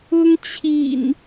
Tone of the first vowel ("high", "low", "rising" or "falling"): high